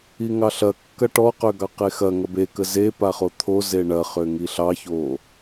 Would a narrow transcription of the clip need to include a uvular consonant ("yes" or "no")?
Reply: yes